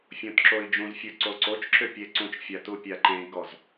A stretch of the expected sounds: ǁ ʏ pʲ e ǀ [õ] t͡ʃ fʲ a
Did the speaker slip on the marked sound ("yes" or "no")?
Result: yes